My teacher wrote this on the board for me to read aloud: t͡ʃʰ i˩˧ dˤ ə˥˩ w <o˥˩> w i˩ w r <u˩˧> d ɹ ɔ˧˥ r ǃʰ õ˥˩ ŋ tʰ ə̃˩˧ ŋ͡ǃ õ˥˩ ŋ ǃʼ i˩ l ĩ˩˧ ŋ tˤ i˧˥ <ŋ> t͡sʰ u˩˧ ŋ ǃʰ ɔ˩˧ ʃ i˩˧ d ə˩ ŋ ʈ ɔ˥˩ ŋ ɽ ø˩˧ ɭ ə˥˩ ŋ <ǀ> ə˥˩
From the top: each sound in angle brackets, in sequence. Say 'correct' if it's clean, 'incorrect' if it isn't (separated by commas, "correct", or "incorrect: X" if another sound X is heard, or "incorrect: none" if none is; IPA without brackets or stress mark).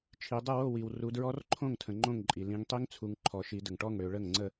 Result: correct, correct, correct, incorrect: ŋ͡ǀ